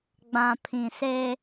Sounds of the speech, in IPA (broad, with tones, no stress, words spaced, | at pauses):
ɡ͡bã˨pʰĩ˨se˦